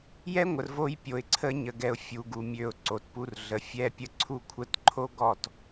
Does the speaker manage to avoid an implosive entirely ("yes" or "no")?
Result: yes